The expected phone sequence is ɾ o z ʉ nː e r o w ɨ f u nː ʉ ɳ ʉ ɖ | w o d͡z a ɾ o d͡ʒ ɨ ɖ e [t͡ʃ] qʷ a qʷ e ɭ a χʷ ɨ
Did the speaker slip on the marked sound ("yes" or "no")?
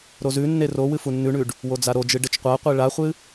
no